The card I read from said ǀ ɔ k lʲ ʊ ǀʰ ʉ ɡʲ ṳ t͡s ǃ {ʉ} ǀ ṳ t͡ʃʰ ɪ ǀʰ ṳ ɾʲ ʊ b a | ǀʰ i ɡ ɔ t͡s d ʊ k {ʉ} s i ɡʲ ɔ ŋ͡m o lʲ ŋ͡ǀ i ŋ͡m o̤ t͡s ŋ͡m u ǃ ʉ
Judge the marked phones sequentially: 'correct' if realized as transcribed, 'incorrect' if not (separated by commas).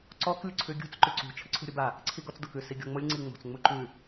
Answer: correct, correct